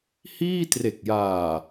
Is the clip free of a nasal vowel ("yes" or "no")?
yes